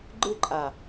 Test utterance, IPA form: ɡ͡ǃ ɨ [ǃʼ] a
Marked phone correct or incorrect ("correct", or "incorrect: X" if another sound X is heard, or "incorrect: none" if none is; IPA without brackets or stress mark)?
correct